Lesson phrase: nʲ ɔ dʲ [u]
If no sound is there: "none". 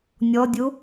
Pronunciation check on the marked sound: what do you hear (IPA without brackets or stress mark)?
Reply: u